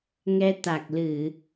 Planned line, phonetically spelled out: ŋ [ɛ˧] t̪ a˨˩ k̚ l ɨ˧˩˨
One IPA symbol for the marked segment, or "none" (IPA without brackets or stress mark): ɛ˧